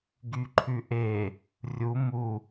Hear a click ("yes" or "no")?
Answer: yes